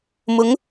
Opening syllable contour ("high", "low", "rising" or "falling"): rising